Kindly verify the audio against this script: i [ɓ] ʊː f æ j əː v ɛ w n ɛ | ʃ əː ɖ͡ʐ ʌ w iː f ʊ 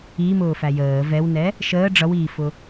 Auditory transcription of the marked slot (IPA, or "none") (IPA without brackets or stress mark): m